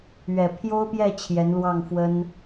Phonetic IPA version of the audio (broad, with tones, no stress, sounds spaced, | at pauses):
ɥ ɛ˨˩ pʰ j o˥ ʊ̯ p j ɛ˥˩ t͡ɕʰ j ɛ˧˥ n l w ɑ˥˩ ŋ f w ə˥ n